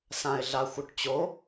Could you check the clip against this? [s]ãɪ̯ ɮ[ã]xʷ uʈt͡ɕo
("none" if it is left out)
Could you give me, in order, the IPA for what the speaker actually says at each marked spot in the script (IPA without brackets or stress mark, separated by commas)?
s, a